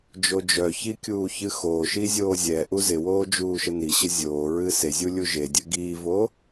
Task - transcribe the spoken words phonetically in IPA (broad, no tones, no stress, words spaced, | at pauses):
d͡ʒod͡ʒœçi kʲuːçɨxoːʃi zʲoːzʲɛʔu zɪwoː d͡ʒuːʃəniɕə zʲoːɹɨ sezʲu lʲuʒedʲɨ ɡiːvo